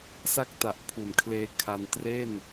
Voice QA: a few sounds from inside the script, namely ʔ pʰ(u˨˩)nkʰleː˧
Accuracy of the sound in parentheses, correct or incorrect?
correct